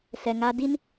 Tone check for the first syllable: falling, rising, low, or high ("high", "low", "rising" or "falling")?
low